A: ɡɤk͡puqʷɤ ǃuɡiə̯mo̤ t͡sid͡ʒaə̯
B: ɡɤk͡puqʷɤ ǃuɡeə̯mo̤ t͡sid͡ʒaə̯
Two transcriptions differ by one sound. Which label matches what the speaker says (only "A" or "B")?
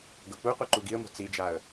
A